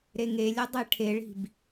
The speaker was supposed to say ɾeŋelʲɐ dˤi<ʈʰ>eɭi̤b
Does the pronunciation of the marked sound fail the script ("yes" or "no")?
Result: no